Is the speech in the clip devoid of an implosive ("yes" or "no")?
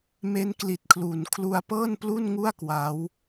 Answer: yes